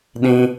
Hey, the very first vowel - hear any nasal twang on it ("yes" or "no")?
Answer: yes